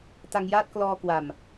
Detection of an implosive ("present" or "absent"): absent